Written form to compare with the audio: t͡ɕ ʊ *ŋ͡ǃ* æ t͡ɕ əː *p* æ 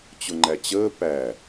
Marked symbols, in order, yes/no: yes, yes

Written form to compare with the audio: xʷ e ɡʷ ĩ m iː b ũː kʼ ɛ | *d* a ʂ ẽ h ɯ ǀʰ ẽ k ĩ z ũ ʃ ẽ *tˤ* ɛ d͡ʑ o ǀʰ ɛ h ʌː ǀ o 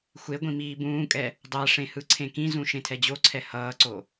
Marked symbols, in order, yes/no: no, no

